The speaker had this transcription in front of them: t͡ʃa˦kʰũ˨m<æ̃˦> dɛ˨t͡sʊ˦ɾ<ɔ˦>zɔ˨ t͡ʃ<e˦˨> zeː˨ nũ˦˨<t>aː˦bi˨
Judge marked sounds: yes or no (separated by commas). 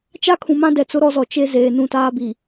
no, yes, no, yes